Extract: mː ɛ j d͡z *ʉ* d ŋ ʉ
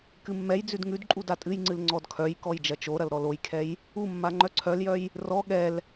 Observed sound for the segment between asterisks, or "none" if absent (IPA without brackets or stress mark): ʉ